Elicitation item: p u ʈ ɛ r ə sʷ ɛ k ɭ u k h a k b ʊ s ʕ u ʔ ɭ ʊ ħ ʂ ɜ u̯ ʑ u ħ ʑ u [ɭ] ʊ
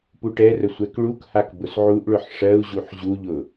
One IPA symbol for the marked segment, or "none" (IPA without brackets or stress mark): ʎ